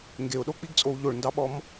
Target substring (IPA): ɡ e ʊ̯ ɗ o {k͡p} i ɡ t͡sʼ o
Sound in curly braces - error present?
no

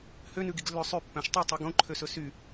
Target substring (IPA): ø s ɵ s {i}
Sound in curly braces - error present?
yes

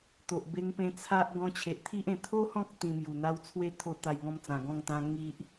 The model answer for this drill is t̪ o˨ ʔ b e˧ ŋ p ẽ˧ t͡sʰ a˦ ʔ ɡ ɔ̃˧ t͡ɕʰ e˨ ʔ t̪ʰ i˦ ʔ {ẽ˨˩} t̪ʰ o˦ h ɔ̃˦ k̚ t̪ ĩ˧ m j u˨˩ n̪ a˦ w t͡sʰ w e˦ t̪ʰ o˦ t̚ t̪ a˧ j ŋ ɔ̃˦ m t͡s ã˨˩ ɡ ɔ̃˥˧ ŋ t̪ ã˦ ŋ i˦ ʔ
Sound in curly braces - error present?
no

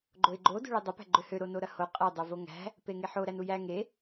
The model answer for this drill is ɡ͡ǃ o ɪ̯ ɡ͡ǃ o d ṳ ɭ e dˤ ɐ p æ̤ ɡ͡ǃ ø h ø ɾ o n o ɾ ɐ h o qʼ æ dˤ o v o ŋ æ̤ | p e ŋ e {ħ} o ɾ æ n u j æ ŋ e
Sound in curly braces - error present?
no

